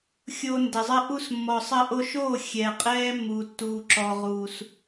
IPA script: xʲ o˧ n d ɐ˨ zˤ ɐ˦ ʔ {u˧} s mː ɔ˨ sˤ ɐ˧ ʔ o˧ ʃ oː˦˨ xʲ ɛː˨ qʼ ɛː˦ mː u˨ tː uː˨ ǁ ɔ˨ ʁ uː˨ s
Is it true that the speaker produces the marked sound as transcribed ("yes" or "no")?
no